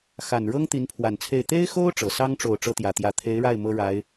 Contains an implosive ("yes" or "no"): no